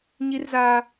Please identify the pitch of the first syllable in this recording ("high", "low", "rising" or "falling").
high